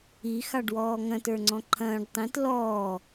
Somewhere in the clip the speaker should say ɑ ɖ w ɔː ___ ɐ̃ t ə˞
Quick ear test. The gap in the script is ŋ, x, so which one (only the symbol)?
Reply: ŋ